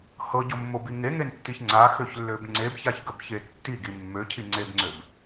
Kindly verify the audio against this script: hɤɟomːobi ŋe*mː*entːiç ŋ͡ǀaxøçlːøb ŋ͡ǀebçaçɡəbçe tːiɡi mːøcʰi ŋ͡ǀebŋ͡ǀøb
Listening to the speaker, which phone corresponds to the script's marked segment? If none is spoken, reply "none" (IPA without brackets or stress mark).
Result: ŋ